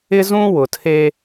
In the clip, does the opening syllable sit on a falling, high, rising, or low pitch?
high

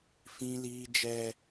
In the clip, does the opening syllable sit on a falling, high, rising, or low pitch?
high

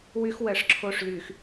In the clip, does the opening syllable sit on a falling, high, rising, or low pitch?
high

